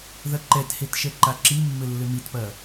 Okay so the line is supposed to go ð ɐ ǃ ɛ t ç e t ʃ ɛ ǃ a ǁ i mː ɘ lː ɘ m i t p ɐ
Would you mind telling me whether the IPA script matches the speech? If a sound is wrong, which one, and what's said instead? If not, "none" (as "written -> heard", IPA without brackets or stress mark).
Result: ç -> h